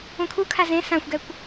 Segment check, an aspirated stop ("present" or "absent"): present